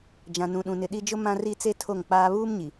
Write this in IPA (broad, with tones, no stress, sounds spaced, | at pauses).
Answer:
d͡ʒ ã˨ n ũ˨ ɗ ũ˨ n ɪ˨ ɗ i˦ d͡ʒ ʊ˦ m ã˦ r i˦ t͡s e˦ tʰ o˦˨ ŋ k͡p aː˦ β uː˦ m ɲ i˨